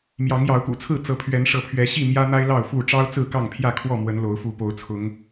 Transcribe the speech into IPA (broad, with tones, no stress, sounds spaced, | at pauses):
m j ɑ˨˦ ŋ j ɑ˨˦ ʊ̯ k ṵ˨˩ t͡sʰ ɹ̩˥˨ t͡s ɤ˨˦ pʰ ɥ ɛ˨˦ n ʂ ɤ˨˦ pʰ ɥ ɛ˨˦ ɕ i˥˨ m j ä˦ n̪ a˦ ɪ̯ l ɑ˥˨ ʊ̯ f u˥˨ ʈ͡ʂ ɑ˦ ʊ̯ t͡s ɹ̩˥˨ k ɑ˥˨ ŋ pʰ j ä˥˨ kʰ w ɔ˥˨ m w ə˨˦ n l o˨˦ ʊ̯ f u˨˦ p o˨˦ ʊ̯ t͡sʰ ʊ˨˦ ŋ